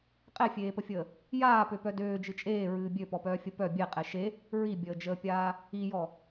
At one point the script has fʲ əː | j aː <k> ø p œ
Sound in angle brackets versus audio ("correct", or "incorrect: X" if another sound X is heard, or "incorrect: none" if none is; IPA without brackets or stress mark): incorrect: p